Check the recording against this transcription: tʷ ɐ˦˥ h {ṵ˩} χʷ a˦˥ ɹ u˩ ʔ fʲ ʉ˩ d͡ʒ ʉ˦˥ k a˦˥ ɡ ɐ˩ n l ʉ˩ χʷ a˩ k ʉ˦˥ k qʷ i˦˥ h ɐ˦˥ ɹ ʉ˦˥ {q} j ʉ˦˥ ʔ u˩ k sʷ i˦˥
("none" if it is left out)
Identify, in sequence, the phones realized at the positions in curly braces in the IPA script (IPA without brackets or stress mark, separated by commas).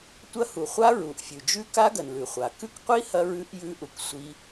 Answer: u˩, ʔ